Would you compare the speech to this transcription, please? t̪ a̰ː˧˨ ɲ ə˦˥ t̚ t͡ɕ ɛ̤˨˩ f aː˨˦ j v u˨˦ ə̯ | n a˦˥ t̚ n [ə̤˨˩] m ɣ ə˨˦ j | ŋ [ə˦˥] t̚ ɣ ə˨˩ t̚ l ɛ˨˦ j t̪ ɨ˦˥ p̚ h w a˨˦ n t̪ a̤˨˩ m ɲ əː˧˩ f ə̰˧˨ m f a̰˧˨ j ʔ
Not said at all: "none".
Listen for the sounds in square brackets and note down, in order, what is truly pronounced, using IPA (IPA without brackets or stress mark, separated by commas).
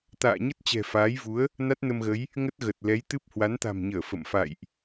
ə˧, ə˦˥